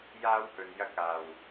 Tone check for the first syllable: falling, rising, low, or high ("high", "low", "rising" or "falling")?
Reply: high